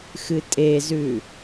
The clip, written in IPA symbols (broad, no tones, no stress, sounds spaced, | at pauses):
x ɨ tʼ e z ʉ